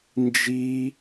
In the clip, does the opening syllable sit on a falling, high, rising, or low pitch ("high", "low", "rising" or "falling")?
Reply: high